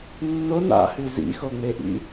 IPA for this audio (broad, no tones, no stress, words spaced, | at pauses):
nːon a̰hʉ zḭxoŋ͡meʔḭ